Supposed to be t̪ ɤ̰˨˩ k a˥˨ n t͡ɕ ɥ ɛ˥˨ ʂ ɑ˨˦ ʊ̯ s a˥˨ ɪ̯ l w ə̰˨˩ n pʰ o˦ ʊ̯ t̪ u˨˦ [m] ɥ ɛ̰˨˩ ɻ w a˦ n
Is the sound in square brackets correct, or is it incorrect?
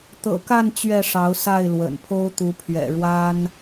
incorrect